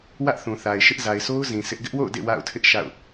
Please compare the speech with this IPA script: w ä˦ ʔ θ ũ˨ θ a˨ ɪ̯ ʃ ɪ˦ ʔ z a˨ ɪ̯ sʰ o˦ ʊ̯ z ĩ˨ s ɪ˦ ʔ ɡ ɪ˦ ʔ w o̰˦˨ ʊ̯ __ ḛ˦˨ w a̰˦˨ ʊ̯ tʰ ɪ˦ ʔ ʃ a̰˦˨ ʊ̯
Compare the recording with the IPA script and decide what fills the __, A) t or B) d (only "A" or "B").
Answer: B